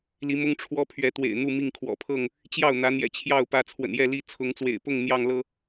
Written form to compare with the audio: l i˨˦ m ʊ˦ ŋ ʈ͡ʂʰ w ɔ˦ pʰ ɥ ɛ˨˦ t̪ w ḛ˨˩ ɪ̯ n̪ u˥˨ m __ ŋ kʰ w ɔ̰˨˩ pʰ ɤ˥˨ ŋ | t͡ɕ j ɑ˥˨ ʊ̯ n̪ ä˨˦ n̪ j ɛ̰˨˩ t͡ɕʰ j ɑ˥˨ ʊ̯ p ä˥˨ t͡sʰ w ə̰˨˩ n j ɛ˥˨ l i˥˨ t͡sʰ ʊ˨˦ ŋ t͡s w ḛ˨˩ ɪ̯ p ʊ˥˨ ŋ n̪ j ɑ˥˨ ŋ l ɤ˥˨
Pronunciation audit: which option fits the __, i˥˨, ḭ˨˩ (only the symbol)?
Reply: i˥˨